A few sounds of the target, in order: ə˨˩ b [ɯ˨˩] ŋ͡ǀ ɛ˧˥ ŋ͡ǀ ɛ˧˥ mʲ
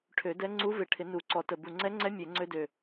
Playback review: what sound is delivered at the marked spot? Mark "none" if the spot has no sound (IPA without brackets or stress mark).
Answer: u˨˩